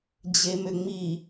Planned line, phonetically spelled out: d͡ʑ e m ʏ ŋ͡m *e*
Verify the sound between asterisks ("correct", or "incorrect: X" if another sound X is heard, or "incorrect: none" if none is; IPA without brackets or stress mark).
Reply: incorrect: i